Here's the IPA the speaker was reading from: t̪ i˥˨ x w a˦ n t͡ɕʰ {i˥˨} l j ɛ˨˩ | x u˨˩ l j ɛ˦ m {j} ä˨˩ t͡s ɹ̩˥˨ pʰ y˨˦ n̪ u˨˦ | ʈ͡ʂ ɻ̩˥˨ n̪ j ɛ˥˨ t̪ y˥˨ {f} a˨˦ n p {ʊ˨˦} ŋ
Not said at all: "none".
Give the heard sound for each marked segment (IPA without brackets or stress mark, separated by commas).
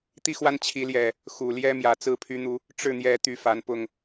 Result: i˨˦, j, f, ʊ˥˨